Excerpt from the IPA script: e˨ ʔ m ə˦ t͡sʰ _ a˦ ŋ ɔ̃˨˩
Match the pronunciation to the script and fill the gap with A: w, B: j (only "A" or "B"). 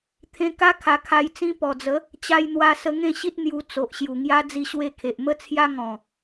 B